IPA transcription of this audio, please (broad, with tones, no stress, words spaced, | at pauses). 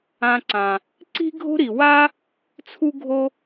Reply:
ã˨ǀã˩ | ǀi̤˦ɡʱo̤˦ɾi˩ wa˥ | t͡sʰu˦ɡʱo˦